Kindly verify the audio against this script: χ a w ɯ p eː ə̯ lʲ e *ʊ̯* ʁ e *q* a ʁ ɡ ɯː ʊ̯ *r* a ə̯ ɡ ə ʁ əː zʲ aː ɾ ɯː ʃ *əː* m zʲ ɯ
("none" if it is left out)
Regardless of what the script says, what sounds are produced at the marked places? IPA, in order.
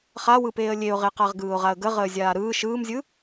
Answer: ʊ̯, q, ʁ, ɯː

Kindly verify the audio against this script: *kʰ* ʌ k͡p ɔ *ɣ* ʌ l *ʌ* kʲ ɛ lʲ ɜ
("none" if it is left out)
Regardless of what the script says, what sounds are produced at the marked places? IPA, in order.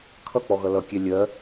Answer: kʰ, ɣ, ʌ

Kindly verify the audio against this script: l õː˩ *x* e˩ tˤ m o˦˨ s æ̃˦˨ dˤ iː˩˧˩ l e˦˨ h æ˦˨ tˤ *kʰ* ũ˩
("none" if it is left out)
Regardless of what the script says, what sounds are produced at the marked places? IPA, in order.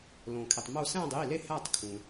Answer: kʰ, kʰ

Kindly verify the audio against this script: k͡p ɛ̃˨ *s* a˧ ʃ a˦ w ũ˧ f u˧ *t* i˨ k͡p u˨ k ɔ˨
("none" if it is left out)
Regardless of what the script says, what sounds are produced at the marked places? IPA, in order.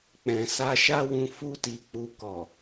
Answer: s, t

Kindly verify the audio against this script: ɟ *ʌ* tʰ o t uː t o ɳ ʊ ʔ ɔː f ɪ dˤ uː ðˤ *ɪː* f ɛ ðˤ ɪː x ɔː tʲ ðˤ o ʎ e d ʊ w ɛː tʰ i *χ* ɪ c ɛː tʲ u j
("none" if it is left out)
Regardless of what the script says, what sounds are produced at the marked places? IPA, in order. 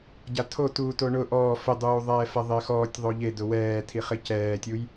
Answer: a, ɛː, χ

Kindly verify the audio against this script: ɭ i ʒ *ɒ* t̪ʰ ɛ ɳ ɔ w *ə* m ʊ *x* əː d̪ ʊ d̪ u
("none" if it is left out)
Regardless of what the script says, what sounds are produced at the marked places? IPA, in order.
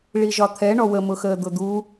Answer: ɒ, ə, x

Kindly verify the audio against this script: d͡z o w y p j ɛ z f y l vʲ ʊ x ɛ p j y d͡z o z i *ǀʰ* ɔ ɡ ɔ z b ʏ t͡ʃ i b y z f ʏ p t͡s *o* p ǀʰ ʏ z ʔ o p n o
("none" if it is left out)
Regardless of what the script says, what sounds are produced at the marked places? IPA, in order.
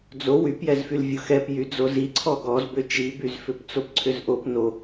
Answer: ǀʰ, o

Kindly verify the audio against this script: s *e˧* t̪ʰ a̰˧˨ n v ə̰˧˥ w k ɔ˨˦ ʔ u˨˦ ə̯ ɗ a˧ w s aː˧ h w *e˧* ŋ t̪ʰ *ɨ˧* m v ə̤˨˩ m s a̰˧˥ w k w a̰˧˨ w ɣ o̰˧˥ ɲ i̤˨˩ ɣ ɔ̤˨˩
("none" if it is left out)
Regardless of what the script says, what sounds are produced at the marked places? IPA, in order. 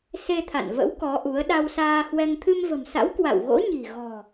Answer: e˧, ɛ˧, ɨ˧

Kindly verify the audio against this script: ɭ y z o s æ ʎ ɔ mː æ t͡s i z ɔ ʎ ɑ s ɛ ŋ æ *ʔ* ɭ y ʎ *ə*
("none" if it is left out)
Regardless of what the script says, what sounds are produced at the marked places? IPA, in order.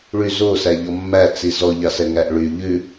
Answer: ʔ, ʉ

